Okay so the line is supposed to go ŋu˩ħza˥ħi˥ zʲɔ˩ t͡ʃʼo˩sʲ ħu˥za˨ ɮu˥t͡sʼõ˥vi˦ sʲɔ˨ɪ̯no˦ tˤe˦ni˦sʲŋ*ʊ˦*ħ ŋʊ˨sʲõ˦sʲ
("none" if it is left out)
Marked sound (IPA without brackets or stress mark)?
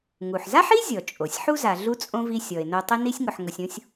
ʊ˨